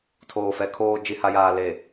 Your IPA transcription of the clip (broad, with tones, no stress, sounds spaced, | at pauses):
tʰ oː˨ f ɛ˨ kʰ oː˨ d͡ʒ i˨ h a˨ j aː˨ l eː˨